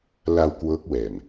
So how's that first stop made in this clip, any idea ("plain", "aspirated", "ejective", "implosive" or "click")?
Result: plain